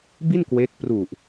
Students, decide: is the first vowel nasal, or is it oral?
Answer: oral